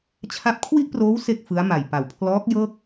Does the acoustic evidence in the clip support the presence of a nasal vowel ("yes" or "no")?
no